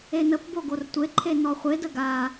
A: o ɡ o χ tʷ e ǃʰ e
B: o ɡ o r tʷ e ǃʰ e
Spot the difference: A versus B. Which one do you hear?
B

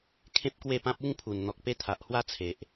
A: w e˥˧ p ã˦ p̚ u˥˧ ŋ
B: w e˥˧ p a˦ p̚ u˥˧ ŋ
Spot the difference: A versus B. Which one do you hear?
A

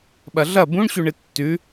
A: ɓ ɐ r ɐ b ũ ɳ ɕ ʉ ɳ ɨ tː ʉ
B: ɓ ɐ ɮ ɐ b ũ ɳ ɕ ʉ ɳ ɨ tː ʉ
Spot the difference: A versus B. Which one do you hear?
B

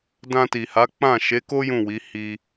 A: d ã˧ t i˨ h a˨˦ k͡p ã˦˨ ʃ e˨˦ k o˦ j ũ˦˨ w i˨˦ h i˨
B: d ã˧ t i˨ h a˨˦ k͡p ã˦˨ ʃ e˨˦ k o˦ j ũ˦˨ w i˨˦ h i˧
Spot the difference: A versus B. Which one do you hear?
B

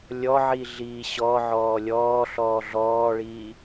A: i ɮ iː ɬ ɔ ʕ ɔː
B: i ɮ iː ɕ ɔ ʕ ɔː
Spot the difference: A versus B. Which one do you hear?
B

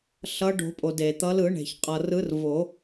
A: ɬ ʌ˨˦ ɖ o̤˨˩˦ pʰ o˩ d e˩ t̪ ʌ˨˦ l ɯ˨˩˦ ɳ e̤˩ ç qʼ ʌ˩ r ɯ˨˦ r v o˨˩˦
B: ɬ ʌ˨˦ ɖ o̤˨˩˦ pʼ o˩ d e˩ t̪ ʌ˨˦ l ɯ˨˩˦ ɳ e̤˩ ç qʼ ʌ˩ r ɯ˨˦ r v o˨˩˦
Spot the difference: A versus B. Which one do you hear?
B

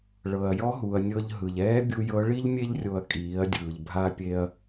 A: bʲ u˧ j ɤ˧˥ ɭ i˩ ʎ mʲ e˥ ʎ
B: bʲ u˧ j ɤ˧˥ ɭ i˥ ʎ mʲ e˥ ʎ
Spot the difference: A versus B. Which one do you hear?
B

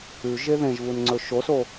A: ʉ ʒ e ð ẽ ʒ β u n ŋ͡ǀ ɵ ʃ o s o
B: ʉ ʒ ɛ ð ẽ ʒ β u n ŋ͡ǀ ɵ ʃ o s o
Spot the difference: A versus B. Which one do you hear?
A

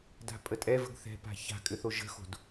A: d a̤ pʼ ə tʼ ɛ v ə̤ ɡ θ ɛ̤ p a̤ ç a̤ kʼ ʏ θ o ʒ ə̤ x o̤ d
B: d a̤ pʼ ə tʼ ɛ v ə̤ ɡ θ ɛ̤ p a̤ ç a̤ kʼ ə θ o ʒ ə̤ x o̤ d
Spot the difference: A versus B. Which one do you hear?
A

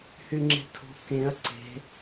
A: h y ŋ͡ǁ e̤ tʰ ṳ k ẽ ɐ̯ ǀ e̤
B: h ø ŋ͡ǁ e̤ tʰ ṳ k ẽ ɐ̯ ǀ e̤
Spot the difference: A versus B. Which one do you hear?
A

